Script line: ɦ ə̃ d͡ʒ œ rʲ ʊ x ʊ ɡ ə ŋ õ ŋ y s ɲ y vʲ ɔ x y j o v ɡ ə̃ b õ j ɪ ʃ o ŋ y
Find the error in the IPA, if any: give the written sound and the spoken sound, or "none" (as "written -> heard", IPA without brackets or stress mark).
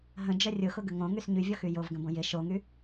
none